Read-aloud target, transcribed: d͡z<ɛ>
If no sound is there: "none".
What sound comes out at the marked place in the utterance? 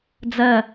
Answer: ɜ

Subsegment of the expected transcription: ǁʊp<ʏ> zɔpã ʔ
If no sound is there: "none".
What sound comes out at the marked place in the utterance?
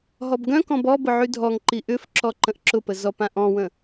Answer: ə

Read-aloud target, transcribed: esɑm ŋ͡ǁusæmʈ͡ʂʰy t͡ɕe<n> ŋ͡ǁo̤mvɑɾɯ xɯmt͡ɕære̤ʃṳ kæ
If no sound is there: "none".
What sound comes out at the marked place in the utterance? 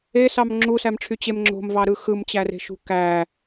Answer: m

